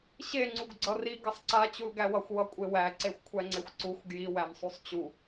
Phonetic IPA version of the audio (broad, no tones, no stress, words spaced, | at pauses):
ɕeŋ͡ǀuɡ ɡ͡ǀʌri ɡʌsˤǀa t͡ɕulɡæwʌxʷwʌ kʷʼewæ ǀexʷkʷʰæŋ͡ǀexʷǀuxʷ ɡjiwæmsˤusˤ t͡ɕu